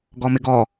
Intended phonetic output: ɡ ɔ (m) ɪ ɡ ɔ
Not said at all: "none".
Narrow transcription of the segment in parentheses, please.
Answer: m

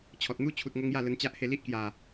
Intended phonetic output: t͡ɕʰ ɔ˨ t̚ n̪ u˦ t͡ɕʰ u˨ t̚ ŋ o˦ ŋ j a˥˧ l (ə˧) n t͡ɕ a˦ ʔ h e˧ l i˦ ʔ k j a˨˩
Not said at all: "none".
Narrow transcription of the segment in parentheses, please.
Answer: ə˧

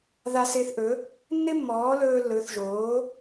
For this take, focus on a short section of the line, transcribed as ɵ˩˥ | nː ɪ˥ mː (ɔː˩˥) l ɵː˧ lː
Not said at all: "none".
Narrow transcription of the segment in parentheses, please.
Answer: ɔː˩˥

